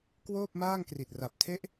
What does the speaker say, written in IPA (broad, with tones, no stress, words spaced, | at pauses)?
kwoː˥˩p̚maː˥˩ŋkri˨˩t̚ ra˨˩p̚tʰe˥˩ʔ